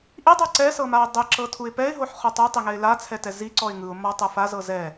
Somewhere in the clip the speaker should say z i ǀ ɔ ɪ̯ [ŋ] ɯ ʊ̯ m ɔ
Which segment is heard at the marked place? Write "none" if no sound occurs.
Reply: ŋ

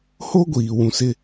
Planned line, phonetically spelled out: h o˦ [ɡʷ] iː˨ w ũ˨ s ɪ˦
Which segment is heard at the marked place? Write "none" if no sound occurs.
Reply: ɡʷ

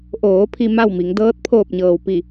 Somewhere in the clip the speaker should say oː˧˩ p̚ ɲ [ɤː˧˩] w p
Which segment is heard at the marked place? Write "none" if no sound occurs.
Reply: ɤː˩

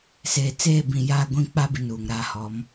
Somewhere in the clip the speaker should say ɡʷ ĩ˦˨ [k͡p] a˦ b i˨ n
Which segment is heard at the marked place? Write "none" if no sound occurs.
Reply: k͡p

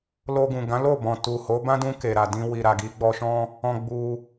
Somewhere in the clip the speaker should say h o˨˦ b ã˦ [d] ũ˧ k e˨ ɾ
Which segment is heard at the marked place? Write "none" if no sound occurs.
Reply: d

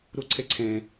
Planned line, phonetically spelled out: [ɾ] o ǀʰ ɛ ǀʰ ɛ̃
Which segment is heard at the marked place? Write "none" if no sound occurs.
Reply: ɾ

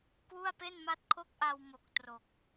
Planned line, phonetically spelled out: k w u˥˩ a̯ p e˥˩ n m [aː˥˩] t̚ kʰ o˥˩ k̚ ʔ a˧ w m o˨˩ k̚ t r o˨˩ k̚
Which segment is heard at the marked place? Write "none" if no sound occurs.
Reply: a˥˩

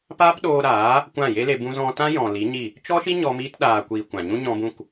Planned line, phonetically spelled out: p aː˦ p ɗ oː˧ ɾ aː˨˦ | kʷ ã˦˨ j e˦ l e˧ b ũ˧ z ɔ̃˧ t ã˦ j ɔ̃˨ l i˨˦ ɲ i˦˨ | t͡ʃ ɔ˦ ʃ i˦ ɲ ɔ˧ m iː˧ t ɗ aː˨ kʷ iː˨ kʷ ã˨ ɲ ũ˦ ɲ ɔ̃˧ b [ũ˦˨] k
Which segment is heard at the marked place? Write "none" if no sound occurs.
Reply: ũ˦˨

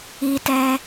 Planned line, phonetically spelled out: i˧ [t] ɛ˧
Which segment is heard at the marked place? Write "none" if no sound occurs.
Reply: t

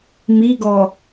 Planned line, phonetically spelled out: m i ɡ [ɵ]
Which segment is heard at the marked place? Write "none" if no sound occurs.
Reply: ɔ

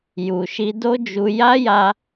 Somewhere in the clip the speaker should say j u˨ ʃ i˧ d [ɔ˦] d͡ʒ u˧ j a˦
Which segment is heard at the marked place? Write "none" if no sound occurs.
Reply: o˦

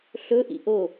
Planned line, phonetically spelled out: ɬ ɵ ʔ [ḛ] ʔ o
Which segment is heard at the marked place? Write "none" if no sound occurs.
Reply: ḭ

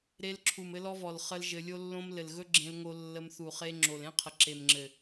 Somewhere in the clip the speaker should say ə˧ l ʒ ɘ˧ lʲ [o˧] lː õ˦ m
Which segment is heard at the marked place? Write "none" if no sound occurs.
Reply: o˦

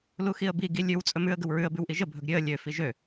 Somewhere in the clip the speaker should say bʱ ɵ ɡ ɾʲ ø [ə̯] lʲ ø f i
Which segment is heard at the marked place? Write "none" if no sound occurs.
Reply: ə̯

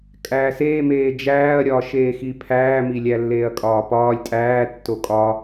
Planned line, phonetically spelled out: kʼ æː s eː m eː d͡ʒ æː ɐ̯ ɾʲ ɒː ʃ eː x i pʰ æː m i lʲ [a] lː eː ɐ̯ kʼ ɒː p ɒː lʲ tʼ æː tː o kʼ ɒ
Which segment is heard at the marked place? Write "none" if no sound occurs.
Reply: æ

